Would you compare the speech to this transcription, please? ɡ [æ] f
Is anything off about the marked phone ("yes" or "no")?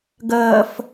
yes